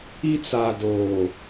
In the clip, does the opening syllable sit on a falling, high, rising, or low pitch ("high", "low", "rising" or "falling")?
high